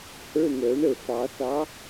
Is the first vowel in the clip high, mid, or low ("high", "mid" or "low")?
mid